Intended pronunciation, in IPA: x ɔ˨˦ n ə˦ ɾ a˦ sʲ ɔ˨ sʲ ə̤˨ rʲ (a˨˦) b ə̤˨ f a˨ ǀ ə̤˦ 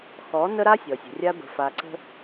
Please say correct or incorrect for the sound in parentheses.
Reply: incorrect